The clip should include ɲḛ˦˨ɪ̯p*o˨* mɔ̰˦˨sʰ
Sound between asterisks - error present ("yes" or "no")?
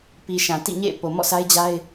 no